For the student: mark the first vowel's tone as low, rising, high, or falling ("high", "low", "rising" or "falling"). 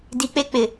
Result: low